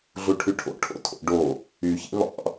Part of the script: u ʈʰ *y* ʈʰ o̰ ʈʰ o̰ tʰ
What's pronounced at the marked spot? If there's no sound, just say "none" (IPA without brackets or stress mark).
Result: y